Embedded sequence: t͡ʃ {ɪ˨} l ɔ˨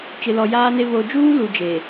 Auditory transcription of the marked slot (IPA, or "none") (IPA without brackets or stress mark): ɪ˨